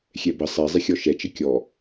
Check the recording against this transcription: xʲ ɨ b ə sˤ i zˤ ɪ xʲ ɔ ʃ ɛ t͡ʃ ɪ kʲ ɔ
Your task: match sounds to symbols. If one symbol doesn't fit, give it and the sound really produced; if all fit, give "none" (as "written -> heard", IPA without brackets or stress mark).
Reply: ɨ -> ɛ